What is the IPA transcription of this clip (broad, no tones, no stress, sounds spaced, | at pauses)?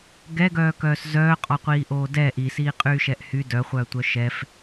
ɡ ɛ ɡ œː k œː s z œː qʼ ɔ qʷ iː ʔ oː d ɛ ʔ i s iː qʼ yː ʃ ɛ ʔ h y d œ χʷ œː tʷ œ ʃ ɛ f